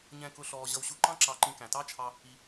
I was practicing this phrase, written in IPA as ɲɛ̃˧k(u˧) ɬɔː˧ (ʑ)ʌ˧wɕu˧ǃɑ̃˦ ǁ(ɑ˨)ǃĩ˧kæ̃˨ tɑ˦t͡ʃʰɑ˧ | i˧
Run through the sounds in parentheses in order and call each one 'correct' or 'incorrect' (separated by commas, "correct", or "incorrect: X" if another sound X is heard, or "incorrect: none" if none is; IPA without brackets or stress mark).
incorrect: ʊ˧, correct, incorrect: ɑ˧